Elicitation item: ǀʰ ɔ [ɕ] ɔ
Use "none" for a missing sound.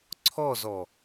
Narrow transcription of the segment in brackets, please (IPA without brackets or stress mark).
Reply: z